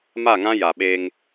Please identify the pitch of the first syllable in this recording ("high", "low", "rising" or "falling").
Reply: falling